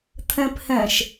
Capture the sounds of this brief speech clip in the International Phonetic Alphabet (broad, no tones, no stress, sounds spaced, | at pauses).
t̪ʰ ɛ̃ p h ɛ̃ ʃ